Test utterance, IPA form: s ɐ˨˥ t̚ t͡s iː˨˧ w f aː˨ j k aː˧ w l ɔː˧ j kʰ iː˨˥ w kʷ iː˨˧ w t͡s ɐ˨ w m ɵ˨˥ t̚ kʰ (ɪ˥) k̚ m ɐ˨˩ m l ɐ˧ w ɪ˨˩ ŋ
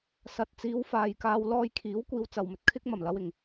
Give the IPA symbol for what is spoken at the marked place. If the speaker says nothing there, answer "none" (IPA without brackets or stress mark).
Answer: ɪ˥